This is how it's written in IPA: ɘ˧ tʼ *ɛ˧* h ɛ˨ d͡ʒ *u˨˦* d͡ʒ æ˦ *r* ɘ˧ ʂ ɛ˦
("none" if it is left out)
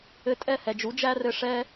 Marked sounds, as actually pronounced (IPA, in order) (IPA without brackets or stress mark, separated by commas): ɛ˦˨, u˨˦, r